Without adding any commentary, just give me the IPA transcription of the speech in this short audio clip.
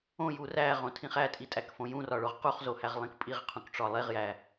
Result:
õ j u r æ ʁ õ tʰ ĩ χ æ tʼ i tʼ æ k f õ j ũ r ɒ ɭ o ʁ q u χ z o h æ ʁ lˠ ĩ k pʼ i ʁ qʰ ũ k ʈ͡ʂ ɒ lˠ e ʁ j æ

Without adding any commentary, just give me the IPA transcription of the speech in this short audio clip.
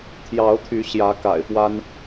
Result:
t̪ʰ j ɑ˨˦ ʊ̯ t̪ʰ y˨˦ ɕ j ä˨˦ k a̰˨˩ ɪ̯ p w a˦ n

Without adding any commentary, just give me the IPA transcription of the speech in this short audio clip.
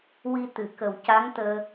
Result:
w i˧ t̪ ɨ˨˩˨ k ə˨˩ w c a˧˥ ŋ t̪ əː˧

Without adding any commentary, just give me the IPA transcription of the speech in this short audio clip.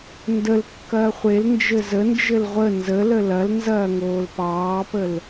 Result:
n d ə l kː ɐː χʷ e l n d͡ʒ ɘ z ə n d͡ʒ ɘ l ʁʷ ə n z ə l ə l ɐ l n z ɐː ŋ oː l p ɑː p ə l

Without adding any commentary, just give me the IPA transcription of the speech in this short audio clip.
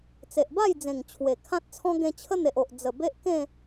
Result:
t͡s e˨ ʔ b a˥˧ j d͡z ẽ˨˩ ŋ t͡ɕʰ w e˨˩ kʰ ã˦ t̚ t͡sʰ ɔ̃˦ ɡ ẽ˧ t͡ɕʰ ə˦ n̪ e˨ ʔ o˨ ʔ d͡z ə˨˩ b e˦ ʔ k ẽ˥˧

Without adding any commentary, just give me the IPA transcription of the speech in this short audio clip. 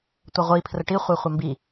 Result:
tʷ ɐ ʁʷ i pʰ r ə ʈ i χʷ e χʷ ə m b i

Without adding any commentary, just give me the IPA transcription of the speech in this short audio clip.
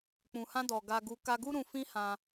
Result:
k͡p ũ˨ h ã˧ d ɔ˨ ɡ a˨ ɡ u˨ k a˧ ɡ u˦ ɾ ũ˧ f ĩ˦ h ã˧

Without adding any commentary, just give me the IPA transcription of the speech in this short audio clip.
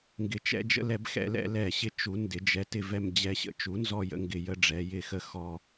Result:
ŋ ɡ ɪ˩˧ t͡ʃ ɛ̰˧ d͡ʒ ə̰˧ l ɛ˧˩˧ b x ɛ̰˧˩˧ l ɛ̰˧˩˧ l ɛ˧˩˧ ɕ ɪ˧ t͡ʃ u˩˧ n d ɪ˩˧ d͡ʒ ɛ˩˧ t ɪ˧ v ɛ˧ m d͡ʑ ɛ˧ ɕ ə̰˧ t͡ʃ u˩˥ n z ɔ˧ j ə̰˧ ŋ ɡ ɪ˧˩˧ j ə˧ ɖ͡ʐ ɛ˩˧ j ɪ˧˩˧ x ə˧ x ɔ˧

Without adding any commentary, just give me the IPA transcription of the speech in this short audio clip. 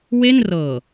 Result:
w e˥˩ n r ɤː˨˩

